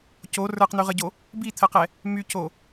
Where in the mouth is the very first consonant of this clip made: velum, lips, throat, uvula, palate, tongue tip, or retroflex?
palate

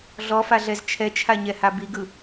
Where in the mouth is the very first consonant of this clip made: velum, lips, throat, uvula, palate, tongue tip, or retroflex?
tongue tip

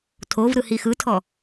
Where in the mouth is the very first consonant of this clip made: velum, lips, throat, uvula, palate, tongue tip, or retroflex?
tongue tip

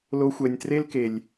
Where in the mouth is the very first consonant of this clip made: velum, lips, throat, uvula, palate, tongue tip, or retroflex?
tongue tip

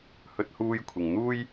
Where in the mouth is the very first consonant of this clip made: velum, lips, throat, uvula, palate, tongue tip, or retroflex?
throat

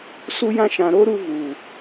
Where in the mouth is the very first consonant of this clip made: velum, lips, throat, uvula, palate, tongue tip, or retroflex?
tongue tip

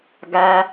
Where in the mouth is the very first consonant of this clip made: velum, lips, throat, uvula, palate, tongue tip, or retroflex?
velum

